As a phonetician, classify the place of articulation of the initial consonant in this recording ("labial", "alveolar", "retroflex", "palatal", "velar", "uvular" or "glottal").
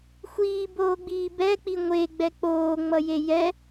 velar